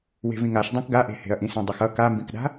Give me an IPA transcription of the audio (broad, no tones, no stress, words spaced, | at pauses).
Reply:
we̤vĩŋaʃ dˤãkɡaʔe̤he̤ɐ̯ ʔĩsẽdˤʌxʌ kambĩkɗa̤